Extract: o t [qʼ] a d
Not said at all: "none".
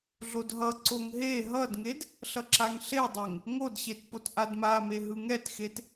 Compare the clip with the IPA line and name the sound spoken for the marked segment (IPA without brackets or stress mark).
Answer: ʔ